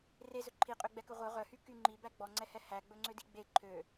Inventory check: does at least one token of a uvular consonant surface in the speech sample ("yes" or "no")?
yes